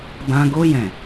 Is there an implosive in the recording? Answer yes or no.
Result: no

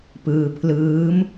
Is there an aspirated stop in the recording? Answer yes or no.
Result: yes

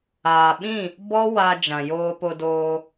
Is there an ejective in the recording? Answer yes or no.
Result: no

